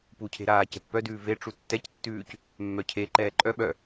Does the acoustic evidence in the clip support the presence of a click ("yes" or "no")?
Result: yes